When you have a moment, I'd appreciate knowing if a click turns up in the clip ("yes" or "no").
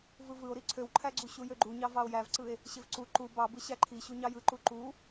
yes